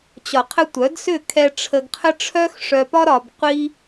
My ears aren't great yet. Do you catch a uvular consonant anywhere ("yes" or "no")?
yes